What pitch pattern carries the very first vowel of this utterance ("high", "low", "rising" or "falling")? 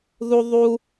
high